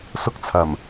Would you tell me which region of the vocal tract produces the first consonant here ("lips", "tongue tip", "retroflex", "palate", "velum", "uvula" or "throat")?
tongue tip